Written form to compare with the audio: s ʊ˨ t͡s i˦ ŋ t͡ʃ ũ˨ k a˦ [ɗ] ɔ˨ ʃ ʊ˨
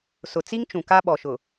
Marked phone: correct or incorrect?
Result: incorrect